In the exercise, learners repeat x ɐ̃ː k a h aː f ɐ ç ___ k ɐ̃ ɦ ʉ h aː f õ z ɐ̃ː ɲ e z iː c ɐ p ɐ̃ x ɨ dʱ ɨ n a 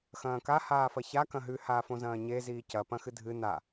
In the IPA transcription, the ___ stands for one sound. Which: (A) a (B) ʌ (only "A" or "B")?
A